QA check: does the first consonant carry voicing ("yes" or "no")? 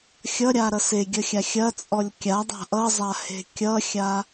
no